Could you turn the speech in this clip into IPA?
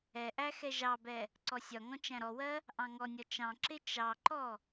ɛ ʔ æ x ɛ ʒ ɑ b ɛ | ǀ ɔ sʲ ɒ ŋ ɔ̃ t͡ʃ æ̃ ɾ ɔ w ɜ | ʔ ɑ̃ ŋ ɔ nʲ ɒ t͡ʃ ɑ̃ ǁ ɪ t͡ʃ ɑ ǃ ɔ

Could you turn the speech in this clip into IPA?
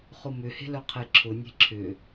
χ ʊ m ʏ h e̤ l œ qʰ e ǁʰ ʊ nʲ e̤ ǁʰ ʏ

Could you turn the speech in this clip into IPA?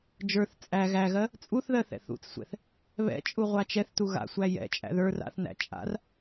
d͡ʒ ə˞ θ t͡sʼ æ ɣ æ ɣ ɜ | t͡sʼ u θ ð ɜ θ ɛ̰ θ ṵ t͡s sʷ ɛ̰ θ | β ɛ̰ t͡ʃʼ u ʁʷ a t͡ʃ ɛ θ t u ɣ a̰ sʷ æ j ɛ̰ t͡ʃʼ æ̰ ð ə˞ r a̰ θ n æ̰ t͡ʃʼ a̰ r

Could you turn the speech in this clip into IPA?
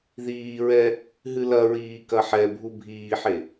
ð iː ɹ ɛ | ɦ ɨ l ɐ ɹ iː k ɐ ħ ɛ bʱ u bʱ iː ħ e

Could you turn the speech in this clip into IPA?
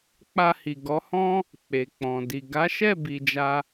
k͡p a˧ h i˨ ɡ ɔ˨˦ h ɔ̃˦ | k͡p e˨ k͡p ɔ̃˨ d i˨ ɡ a˨˦ ʃ ɛ˦˨ b i˧ d͡ʒ a˦

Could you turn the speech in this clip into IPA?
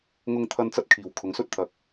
ŋ ʊ˧ ŋ t̪ʰ ɐ˧ n t͡s ɐ˧ t̚ kʰ iː˨ w kʰ ʊ˨˧ ŋ s ɵ˥ t̚ t̪ʰ ɐ˧ k̚

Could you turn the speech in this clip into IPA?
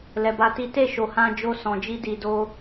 l ɛ˧ b a˦ t i˦ t e˦˨ ʃ o˨ h ã˧ d͡ʒ o˧ s ɔ̃˨ d͡ʒ i˧ d i˨ d o˧

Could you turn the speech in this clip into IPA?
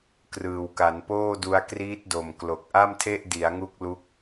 k r ɯː˨˩ w k a˩˦ n p oː˥˩ d u˧ a̯ k r iː˦˥ t̚ d o˨˩ m k l o˨˩ k̚ ʔ a˥˩ m tʰ e˥˩ ʔ d i˩˦ a̯ ŋ u˦˥ k̚ l u˦˥ k̚

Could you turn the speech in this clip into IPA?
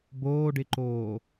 b oː ɖ ɪ ǃ oː

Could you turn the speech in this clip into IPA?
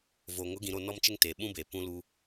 v o˨ ŋ ʊ˨˦ ɡ ĩ˨ ɾ o˦˨ n ɔ˦ m t͡ʃ ɪ˦ ŋ t eː˨ ɓ ũ˦ b eː˨ p ũ˦ l uː˦

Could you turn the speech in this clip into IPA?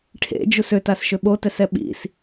ʈʰ ḛ d͡ʒ u s ø t a s ʃ ø ɓ o t ɛ s ɛ ɓ ḭ s

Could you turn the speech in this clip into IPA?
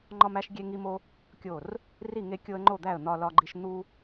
ŋ͡ǃ ɒ˦ m æ˦ ʃ ɡʲ e˦ ŋ i˦ m o˦ | kʲ o˥˩ r | r i˥˩ ŋ e˦ kʲ o˦ ə̯ ŋ͡ǃ o˥˩ d̪ æ˥˩ ə̯ n̪ ɒ˦ l ɒ˦ ɡ͡ǃ i˦ ʃ n̪ u˦

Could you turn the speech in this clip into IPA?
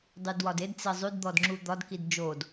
dˤ y d w ɒ d e d t͡s e zˤ y d d̪ ɔ d ŋ͡ǁ u d̪ ɒ d k i d d͡ʒ o d

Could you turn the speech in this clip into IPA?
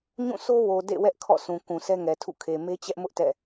ɲ ũ˦˨ s o˦ w o˨ d ḛ˦˨ w ɛ˦ ʔ kʰ ɔ̰˦˨ sʰ ũ˨ k ũ˨ sʰ ɛ˦ ŋ ɛ˨ tʰ ṵ˦˨ kʰ e˨ m e˦ t͡ɕ ɛ˦ ʔ m ʊ˦ ʔ t ɛ̰˦˨

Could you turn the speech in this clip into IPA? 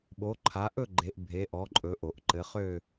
ɓ o˨˦ ǃʰ a˨˦ ʔ ɵ˥˧ ɡ͡ǃ e˨˦ ʔ bʱ e˨˦ ʔ ɔ˨˦ ǃʼ ɵ˨˦ ʔ o˨˩˦ ʔ ǃ ɘ˨˦ χ ø˥˧

